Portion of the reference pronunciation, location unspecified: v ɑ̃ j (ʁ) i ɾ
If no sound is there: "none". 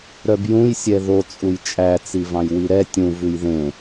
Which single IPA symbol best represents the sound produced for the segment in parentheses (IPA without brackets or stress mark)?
w